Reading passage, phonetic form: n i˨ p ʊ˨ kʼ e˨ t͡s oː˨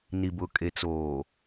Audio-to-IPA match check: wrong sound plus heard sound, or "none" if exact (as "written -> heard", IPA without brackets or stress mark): p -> b